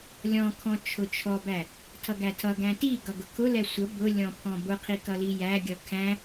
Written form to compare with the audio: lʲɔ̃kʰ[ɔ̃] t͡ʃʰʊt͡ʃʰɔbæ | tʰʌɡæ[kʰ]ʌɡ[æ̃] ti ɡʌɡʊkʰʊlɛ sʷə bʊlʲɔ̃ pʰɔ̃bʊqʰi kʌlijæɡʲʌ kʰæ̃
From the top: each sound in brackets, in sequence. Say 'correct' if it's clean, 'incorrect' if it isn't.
correct, incorrect: tʰ, correct

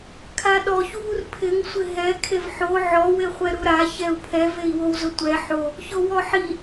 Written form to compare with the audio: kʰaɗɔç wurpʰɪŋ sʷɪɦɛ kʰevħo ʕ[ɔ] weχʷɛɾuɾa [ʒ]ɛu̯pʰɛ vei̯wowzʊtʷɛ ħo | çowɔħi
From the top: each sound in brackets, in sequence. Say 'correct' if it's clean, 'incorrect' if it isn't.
correct, incorrect: ç

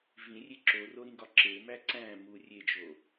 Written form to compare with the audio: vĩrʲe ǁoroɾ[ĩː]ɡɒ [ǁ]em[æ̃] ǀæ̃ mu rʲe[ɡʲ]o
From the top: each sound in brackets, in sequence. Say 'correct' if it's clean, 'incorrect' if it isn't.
incorrect: ĩ, correct, incorrect: æ, incorrect: d͡ʒ

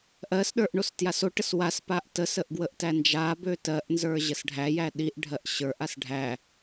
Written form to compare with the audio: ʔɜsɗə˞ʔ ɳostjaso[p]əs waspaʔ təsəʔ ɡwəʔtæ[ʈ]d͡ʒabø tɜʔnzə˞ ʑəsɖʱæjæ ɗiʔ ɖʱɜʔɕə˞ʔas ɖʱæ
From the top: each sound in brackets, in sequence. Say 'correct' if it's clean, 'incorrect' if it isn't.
incorrect: ʈ, incorrect: n

